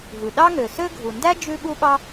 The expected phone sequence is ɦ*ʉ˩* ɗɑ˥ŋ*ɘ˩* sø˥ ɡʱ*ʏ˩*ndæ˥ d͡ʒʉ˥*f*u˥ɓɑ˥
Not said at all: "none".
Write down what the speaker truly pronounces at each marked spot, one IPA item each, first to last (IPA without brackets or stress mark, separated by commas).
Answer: ʉ˩, ø˩, u˩, ɓ